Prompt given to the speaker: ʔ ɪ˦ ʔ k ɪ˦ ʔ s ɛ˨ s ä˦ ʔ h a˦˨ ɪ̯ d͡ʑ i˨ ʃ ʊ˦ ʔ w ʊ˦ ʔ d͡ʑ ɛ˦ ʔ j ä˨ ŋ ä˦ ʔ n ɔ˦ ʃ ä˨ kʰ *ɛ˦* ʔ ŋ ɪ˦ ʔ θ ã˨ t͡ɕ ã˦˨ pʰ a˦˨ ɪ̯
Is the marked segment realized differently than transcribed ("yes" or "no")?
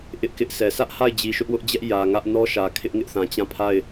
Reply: yes